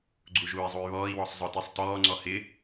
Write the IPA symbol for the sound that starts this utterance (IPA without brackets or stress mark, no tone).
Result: ɡ͡ǀ